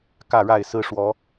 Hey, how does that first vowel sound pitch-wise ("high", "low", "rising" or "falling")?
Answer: falling